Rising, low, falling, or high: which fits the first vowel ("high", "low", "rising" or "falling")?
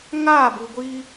falling